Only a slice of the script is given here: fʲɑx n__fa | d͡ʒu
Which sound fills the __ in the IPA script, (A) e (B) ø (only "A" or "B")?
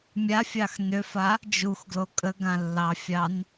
B